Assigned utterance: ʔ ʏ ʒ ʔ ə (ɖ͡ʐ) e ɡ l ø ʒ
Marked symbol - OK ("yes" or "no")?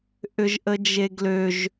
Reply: no